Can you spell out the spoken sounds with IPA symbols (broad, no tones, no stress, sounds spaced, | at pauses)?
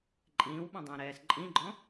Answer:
ǃʼ ĩː w ɓ ɔ̃ dˤ ɐ̃ː ɾ ɛː s ǃʼ ĩ ɡ͡ǃ ɔ̃